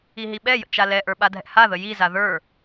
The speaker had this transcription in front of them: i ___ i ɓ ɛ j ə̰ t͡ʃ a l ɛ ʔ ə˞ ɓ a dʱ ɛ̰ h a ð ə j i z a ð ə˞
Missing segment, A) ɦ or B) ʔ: A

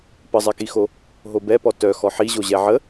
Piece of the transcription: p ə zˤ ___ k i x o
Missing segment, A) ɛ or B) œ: A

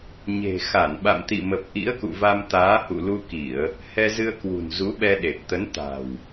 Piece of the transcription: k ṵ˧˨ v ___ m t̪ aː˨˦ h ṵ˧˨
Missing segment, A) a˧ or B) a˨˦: A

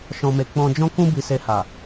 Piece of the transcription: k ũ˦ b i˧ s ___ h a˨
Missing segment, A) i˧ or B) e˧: B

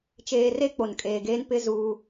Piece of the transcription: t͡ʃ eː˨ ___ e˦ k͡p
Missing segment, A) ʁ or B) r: B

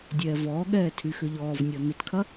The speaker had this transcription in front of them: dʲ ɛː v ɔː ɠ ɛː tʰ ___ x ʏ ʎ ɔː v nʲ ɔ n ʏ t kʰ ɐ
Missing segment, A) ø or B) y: B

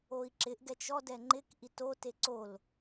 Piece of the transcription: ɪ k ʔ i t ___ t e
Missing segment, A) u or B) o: B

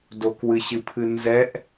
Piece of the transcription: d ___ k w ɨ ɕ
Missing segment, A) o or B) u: A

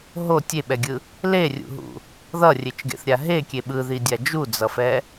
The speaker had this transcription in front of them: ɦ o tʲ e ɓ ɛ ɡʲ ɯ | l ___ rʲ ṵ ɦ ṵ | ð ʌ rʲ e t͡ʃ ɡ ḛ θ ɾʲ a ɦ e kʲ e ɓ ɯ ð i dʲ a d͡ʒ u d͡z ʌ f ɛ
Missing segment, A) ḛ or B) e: B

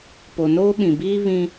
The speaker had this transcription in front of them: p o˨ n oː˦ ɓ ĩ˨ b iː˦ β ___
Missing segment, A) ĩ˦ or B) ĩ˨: A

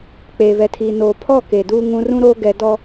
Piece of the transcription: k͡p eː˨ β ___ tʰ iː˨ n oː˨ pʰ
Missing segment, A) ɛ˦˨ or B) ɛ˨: B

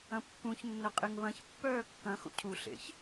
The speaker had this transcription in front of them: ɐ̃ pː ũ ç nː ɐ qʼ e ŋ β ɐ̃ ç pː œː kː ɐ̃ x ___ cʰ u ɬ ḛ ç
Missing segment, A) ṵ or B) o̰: A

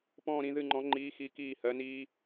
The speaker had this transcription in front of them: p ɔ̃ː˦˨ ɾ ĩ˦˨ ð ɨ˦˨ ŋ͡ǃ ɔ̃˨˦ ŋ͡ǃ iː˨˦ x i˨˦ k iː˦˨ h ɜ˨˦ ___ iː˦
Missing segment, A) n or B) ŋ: A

